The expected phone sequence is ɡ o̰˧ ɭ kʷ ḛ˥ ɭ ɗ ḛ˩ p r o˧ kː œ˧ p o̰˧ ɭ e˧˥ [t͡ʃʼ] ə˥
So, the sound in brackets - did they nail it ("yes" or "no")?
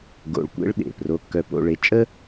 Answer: yes